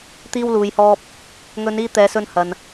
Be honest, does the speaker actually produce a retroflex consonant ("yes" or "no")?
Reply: no